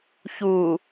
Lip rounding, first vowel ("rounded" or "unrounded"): rounded